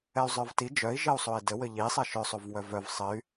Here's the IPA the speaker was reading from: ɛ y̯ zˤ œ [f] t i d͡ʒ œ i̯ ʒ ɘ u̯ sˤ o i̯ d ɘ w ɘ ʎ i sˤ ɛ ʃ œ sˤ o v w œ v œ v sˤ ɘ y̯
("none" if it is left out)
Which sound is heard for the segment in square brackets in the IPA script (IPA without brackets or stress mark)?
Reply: v